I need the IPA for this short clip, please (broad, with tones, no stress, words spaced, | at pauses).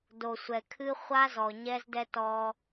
do˨sʷɛ˨kʰɨ˦ χʷa˦zɔ˨ɲɛ˦zdɛ˦ tɔ˦